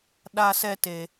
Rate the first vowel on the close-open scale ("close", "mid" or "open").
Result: open